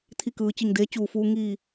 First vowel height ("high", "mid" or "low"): high